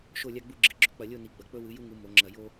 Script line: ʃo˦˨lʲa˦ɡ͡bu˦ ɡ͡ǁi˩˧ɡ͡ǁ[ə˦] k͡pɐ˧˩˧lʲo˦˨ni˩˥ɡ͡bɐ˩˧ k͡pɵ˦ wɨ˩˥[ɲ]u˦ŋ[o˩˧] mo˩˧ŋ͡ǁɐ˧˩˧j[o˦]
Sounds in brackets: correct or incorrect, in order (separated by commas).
incorrect, incorrect, incorrect, correct